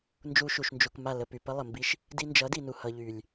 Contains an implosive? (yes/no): no